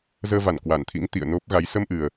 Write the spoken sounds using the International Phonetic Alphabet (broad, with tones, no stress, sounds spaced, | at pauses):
z əː˧ v a˧˩ n k w a˧˩ n t̪ʰ ḭ˧˥ ŋ t̪ ḭ˧˨ ə̯ n o˦˥ p̚ ɣ a˨˦ j s ə˧ m ʔ ɨ˨˩ ə̯